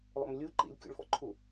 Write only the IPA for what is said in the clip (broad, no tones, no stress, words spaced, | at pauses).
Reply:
lˠo̰mlʲu ǃḭlʲkʲo̰ɭfɔ̰ ǃʰu